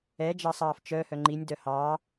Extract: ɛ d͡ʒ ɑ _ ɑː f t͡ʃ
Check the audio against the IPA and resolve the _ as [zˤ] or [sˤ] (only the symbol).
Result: sˤ